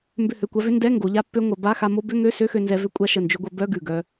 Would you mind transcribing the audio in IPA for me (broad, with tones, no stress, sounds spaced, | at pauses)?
m b ʏ˧˩ h ø˧˩ kʷ a˧ v ʏ˧˥˧ n d ɛ˧˥˧ ŋ ɡ o˩˧ ʎ a˧ pː ø˧ ŋʷ œ˩˧ b a˧˥˧ x a˧ m o˧˥˧ b ʏ˧˥˧ ŋ ø˧˥˧ s ø˧˥˧ x ø˧ n z ɛ˧ v ʏ˦˥ kʷʼ a˧ ʃ ə˧˩ n d͡ʒ ʏ˧ ɡʷ œ˧ b œ˧˥˧ ɡ ʉ˧˩ ɡ œ˧